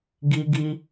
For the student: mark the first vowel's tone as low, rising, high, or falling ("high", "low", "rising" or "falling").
high